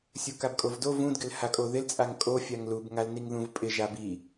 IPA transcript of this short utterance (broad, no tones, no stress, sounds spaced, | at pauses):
sʲ u k a b kʼ o v d o v ũ d ɡ ɪ l h a kʼ o ð ɪ l t͡sʼ a ŋ kʼ o fʲ a ŋ l u b ŋ a l n i ŋ ð ũ v pʼ ɪ ʒ a b i